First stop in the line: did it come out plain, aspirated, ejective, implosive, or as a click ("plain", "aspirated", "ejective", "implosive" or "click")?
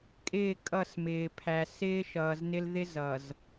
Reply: ejective